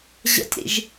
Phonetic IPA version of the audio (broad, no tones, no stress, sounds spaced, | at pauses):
ʑ ə̰ tʲ ɾ ḭ ʒ